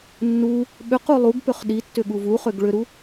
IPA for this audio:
nː u | ɓ ʏ q u lˠ u ɡ p ʏ χ ɗ i tː ʏ ɠ u v u χ ʏ ɡ ɭ ʏ ɾ u

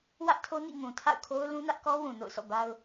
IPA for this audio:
w ä˦ ʔ tʰ o˦ n ḭ˦˨ ŋ ũ˨ tʰ a̰˦˨ ʊ̯ kʰ o˦ ʊ̯ l ũ˦ n ä˦ ʔ k ɔ˦ w ũ˨ n o̰˦˨ ʊ̯ sʰ ɔ̰˦˨ b a˦ ʊ̯

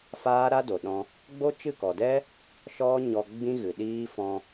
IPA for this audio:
f aː˦ ɾ a˦ d o˨ ɗ ɔ̃˧ | ɡ͡b o˦ t͡ʃ ɨ˦˨ k ɔ˨ d ɛ˦ | ʃ ɔ˦ ɲ ɔ˧ ɡ͡b ĩ˦ ɣ ɨ˨ ɗ iː˦ f ɔ̃˧

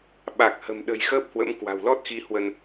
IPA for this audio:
ɓ a˨˩ k̚ h ə̤˨˩ m ɗ ə̤˨˩ j x əː˦˥ p̚ h w ə̰˧˥ m k w a̤˨˩ w l ɔ˦˥ t̚ x i˨˦ h w ə˧ n

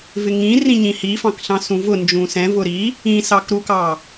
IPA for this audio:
v ɪ ŋ ĩ r ĩ ɲ ĩ h i f ɑ̃ k ɬ ɑ̃ s ũ v ʊ n d͡ʒ ũ s ɛ̃ v ʊ ɾ i | ĩ s ɑ k ɾ u k ɑ

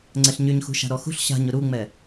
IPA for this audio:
ŋ͡ǀ ɛ ɬ ɲ y ɲ x ṳ ʃ a̤ ɾ ɔ x ṳ ɬ ɕ a̤ ɲ ʊ ɾ u ŋ͡m ɛ

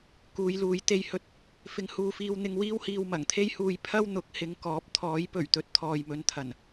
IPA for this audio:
k uː˨˧ j l uː˨˧ j t̪ e˧ j h ɵ˧ t̚ | f ɪ˧ ŋ h uː˧ f iː˧ w n̪ ɪ˧ ŋ w iː˥ w h iː˧ w m ɐ˨˩ ŋ t̪ʰ e˥ j h uː˧ j pʰ ɐ˥ w n̪ ʊ˨˥ k̚ h ɪ˨˧ ŋ k ɔː˨˥ p̚ t̪ʰ ɔː˨˥ j p ɵ˨˩ ɥ t̪ ɵ˨˥ t̚ t̪ʰ ɔː˨ j m ɵ˨˧ n t̪ʰ ɐ˨˩ n

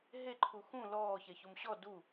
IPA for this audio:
ɦ e ǃʰ u x ũ l ɔː ç ɛ ç o m ɕ ɔ d u

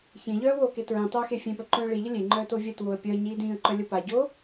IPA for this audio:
ç ẽ ʎ œː w oː k e t ɹ ĩ tˤ œː x e fʲ ẽ p œ ǃ œ̃ː ɭ i ʎ ə lʲ e ŋ͡ǃ œː t o vʲ œ t w o ə̯ pʲ œ ə̯ ɲ iː d ĩː ə̯ ǃ œ lʲ ə p a ɟ oː

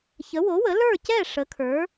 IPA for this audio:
ç ə˩˥ w o˩˥ w ə˩˥ l ə˞˥˩ c ɛ˥˩ ʂ ə˩˥ kʰ ə˞˩˥

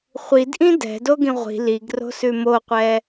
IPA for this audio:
χʷ i d ʔ ĩ d ɛ̤ d o ɡ ĩ ʁʷ i̤ l i ɡ r o̤ s ʉ m o qʷ ɛ

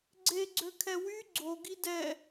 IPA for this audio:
ɡ͡ǀ e ɡ͡ǀ ø kʰ ɛ w y ɡ͡ǀ o ɡ i d ɛ

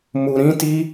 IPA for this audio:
m u˧ ɾ ĩ˦ t i˦

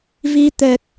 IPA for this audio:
v i˧ t̪ ɛ˨˩ k̚

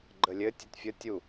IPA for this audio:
ɡ͡ǃ ə lʲ ɘ tʲ ɘ t fʲ ə tʲ u

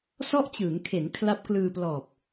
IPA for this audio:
s ɔ˥˩ ʔ t͡ɕ ɯː˩˦ ŋ kʰ e˩˦ n kʰ l a˦˥ p̚ k l ɯː˧ p l ɔː˨˩ p̚

